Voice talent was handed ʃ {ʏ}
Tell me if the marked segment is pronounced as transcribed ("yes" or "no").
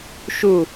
no